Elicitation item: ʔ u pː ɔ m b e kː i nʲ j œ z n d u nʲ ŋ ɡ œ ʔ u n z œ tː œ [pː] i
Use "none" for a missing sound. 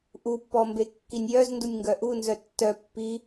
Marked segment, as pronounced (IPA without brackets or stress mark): pː